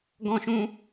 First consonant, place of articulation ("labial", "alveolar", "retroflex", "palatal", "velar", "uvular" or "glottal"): velar